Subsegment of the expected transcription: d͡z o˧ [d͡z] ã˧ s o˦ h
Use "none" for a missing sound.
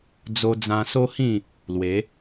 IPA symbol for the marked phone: d͡z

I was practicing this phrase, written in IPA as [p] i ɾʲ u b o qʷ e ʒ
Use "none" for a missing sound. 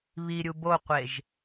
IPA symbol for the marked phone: β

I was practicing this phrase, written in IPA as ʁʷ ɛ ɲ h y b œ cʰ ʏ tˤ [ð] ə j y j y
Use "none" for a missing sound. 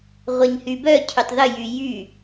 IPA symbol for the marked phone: ð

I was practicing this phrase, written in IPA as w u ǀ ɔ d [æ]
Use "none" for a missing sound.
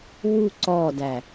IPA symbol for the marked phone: æ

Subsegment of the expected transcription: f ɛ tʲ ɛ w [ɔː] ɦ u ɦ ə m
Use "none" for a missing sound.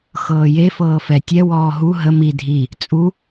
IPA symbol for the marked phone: ɔː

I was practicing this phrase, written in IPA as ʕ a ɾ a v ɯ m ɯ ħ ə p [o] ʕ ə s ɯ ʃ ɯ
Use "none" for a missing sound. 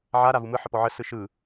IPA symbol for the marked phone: ɔ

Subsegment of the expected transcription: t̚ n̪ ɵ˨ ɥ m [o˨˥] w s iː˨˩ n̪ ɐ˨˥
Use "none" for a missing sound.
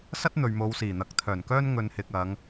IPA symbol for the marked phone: o˨˧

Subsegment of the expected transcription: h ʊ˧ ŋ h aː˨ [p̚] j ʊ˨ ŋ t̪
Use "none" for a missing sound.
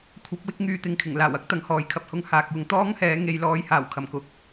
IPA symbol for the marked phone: k̚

